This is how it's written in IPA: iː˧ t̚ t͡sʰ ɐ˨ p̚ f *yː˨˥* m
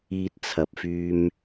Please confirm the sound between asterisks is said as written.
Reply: no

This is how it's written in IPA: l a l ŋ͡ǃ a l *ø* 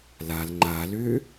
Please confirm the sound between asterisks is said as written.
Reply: yes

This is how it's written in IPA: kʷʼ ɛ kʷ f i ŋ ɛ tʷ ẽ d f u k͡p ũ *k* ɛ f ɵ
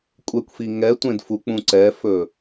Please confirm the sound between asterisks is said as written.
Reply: no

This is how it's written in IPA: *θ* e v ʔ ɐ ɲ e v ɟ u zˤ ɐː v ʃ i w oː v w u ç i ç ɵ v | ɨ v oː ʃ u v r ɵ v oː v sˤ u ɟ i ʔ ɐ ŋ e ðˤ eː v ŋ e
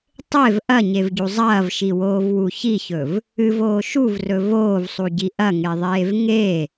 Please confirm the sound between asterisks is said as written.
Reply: no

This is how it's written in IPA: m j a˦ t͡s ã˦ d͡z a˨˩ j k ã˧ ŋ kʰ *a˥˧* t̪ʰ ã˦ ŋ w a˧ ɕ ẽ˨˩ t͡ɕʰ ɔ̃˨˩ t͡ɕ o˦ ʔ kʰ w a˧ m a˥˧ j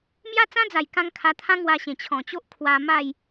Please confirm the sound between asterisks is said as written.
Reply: no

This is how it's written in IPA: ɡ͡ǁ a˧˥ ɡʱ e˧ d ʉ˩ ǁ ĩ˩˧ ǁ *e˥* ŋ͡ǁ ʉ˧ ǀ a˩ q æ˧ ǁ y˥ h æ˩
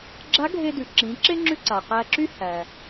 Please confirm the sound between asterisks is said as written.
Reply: yes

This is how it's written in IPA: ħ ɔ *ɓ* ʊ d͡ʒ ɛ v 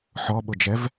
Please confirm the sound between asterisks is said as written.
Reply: yes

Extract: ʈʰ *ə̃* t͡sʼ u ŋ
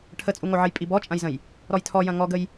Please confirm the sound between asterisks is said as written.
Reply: no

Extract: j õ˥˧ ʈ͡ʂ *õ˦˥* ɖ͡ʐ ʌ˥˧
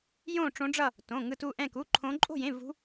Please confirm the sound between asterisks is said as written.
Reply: yes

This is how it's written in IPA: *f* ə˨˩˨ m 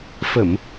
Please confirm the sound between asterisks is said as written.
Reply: yes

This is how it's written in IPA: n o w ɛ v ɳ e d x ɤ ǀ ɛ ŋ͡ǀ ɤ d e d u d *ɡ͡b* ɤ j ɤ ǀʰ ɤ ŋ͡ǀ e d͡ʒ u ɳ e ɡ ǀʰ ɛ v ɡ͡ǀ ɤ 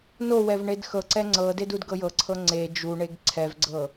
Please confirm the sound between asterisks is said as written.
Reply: no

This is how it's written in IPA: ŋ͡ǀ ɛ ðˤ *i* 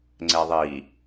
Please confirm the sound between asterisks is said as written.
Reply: yes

